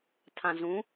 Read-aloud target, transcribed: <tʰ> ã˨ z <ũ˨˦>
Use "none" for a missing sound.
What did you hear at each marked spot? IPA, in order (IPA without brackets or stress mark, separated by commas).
tʰ, ũ˨˦